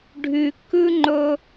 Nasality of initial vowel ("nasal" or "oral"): oral